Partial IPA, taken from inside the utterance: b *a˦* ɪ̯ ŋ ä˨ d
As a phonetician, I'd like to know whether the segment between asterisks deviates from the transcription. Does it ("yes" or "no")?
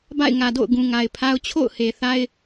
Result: yes